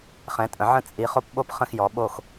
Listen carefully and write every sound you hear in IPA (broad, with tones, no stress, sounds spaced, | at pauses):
χ ɛ̃˨˦ tʼ ə̃˨˦ ʕ ə̃˥˧ t͡sʼ i˨˦ χ o˥ p ɓ o˥ p χ ə̃˥˧ x j ɔ˨˦ ɓ o˥˧ x